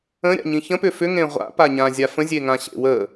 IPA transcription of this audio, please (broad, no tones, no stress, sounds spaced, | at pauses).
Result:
ə̃ ɾʲ a̰ ɲ ĩ ç ə̃ p ʏ f ʏ ŋ ẽ ʁʷ a̰ p a ɲ ã zʲ a f ə̃ zʲ e ŋ ã ɕ ḛ w ə